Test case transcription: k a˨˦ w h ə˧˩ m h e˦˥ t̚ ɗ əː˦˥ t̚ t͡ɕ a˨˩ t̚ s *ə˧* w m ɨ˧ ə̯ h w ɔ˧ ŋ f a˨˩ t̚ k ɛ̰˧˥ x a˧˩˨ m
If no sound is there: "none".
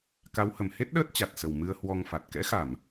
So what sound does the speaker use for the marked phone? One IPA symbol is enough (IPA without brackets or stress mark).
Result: ə˨˩